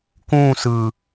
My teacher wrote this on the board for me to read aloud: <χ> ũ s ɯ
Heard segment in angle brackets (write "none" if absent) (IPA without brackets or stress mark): k